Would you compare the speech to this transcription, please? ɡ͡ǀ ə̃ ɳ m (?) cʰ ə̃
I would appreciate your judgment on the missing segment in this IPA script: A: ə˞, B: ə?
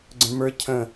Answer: A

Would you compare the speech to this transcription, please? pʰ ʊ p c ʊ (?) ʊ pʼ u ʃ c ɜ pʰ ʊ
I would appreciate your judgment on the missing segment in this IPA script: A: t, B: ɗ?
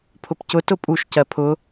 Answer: A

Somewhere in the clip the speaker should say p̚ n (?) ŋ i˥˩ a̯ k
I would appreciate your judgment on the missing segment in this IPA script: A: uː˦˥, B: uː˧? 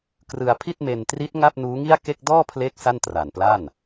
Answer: A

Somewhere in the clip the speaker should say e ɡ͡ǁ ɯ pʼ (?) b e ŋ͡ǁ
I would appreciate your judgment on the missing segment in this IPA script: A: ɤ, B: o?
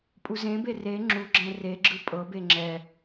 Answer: A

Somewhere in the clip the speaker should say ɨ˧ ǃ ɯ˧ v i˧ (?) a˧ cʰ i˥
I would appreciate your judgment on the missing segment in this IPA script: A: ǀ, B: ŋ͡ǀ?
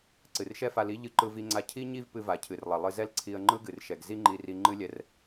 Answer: B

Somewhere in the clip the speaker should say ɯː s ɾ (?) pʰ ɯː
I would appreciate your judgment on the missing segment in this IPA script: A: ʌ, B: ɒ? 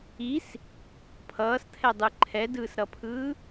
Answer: A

